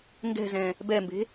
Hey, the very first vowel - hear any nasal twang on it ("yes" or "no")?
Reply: no